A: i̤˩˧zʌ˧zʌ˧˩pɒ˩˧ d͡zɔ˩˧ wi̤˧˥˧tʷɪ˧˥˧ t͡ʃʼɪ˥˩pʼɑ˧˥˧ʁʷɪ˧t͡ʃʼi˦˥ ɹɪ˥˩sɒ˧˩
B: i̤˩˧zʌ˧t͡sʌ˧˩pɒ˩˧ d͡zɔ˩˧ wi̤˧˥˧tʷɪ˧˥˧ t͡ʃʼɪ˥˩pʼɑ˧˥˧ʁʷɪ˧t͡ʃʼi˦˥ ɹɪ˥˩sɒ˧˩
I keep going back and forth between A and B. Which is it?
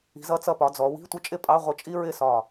B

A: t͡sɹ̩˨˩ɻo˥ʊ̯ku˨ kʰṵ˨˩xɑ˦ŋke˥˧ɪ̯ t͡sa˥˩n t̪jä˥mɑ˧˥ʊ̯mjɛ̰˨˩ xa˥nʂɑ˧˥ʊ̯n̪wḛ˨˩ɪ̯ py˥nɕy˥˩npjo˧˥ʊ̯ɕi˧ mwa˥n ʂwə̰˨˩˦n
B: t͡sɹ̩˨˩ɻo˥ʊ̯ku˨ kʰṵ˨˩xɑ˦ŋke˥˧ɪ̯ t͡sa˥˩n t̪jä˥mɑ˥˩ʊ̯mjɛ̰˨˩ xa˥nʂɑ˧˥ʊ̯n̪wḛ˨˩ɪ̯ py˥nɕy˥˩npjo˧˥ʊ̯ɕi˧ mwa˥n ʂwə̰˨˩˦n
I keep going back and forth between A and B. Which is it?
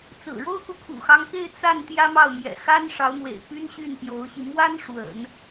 B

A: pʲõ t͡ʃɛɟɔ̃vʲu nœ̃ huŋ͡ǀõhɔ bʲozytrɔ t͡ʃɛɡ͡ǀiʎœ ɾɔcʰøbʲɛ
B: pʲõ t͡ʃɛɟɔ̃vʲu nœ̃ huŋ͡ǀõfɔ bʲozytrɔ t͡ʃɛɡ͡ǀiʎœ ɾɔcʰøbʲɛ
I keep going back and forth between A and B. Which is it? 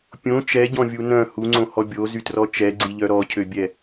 A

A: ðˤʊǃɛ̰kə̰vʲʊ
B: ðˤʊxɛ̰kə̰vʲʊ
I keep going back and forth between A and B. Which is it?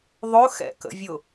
B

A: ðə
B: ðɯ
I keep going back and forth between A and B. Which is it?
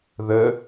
A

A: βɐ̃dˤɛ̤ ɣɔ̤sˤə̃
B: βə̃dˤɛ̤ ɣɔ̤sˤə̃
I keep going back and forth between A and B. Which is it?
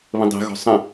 B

